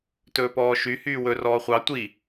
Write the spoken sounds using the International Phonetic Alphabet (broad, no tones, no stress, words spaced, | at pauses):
tɵːpɔːʃy hyːwɵ rɔːχʷɑ tʷi